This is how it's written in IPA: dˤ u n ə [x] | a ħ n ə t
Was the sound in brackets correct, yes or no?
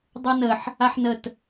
no